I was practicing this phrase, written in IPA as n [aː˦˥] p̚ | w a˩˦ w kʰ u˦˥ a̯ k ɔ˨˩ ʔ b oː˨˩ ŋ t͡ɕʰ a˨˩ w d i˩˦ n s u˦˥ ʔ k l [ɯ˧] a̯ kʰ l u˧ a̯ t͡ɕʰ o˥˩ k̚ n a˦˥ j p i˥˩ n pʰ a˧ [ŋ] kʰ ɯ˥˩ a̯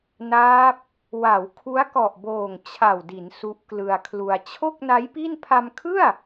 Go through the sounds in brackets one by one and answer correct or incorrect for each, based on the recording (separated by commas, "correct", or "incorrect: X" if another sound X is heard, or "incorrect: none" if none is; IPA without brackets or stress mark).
correct, correct, incorrect: m